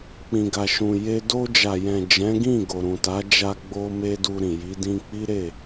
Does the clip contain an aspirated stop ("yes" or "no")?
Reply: no